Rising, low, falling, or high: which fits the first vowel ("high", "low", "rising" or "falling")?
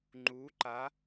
rising